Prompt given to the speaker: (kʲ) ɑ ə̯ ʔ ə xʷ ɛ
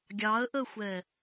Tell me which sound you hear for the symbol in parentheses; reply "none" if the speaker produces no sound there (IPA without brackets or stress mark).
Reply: ɡʲ